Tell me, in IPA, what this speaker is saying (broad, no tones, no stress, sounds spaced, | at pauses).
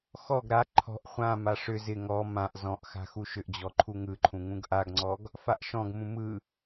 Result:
x ɔ ɡ ɾ a ǃʰ ɔ̤ ʔ χʷ ã m a ʂ ʏ z ɪ ŋ ɔ m ã ʔ z ɔ̃ ʔ x a̤ x u ʃ ʏ ʔ d͡ʑ ɔ ǃʰ u ŋ ɯ ǃʰ ũ ŋ ũ ɡ ʔ a ɡ ŋ͡ǀ ɔ ɡ | f a ʔ ʃ ɔ̃ ɡ m ũ m ɯ